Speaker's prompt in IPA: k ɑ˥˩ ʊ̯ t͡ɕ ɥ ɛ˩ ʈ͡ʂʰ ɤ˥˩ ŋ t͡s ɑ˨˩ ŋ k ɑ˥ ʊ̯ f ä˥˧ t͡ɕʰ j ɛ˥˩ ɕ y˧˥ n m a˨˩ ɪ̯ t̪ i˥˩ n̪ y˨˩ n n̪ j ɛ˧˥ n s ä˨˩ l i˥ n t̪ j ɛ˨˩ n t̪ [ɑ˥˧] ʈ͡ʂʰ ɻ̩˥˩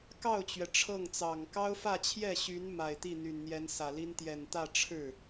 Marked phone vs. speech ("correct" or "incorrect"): incorrect